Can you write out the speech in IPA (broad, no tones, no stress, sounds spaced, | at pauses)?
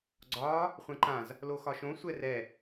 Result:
ɡ͡ǀ ɒː | χʷ ɛ̃ ǃ ã z | l o x ɒ ʃ õ sʷ ɛ r ɛ